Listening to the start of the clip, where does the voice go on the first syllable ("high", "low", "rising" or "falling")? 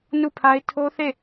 falling